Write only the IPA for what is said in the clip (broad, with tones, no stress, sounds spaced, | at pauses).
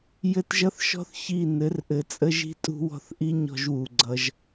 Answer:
j ɘ˦ t ʒ ʌ˦ θ ʃ ɔ̤˦ θ ç i˦˨ n ɘ˨˦ r ʔ ɘ˨ t͡sʼ ə˦ ʒ i̤˦ tʼ ṳ˦ w ɔ̤˦ θ ʔ i˦ ɲ ɔ̤˦ ʒ w u˨ ɡ͡ǀ ʌ˦ ʒ